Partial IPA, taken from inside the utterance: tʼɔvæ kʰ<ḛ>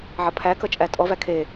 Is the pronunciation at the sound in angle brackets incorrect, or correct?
incorrect